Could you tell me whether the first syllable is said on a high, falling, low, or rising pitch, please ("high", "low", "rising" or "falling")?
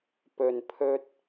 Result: low